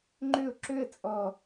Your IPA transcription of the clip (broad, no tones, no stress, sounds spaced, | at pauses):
ŋ͡ǃ ø ʊ̯ ǁ ø ə̯ t͡sʼ ɔ